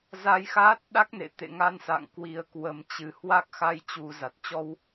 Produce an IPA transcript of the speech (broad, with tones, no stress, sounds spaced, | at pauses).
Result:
z a˧ j x aː˦˥ t̚ ɗ a˦˥ k̚ n ḛ˧˨ t̪ ḛ˧˨ ŋ a˧ n s a̰˧˨ ŋ k w i˨˩ ə̯ k w ə˨˩ m t͡ɕ ɨ˧˩ h w a˦˥ k̚ x a˧ j t͡ɕ u˨˩ z a˨˩ t̚ t͡ɕ ɔ˧ w